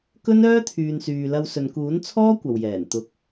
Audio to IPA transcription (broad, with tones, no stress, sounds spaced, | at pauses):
k ɵ˥ n œː˥ t̪ʰ yː˨ n s yː˨ l ɐ˧ w s ɵ˨ n k uː˨˥ n t͡sʰ ɔː˥ kʷ ɐ˨ w j ɛː˨˩ n t̪ ʊ˨˥ k̚